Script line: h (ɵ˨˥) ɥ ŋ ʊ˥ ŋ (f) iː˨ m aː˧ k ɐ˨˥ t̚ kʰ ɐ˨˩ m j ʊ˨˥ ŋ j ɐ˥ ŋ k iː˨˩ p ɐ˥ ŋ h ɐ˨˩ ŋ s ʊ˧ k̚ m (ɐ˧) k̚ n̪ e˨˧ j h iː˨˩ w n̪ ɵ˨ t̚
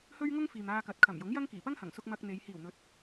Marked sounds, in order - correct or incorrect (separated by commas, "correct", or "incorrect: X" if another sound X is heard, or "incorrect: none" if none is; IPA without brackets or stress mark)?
incorrect: ɵ˥, correct, correct